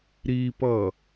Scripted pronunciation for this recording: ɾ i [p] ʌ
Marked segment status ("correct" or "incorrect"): correct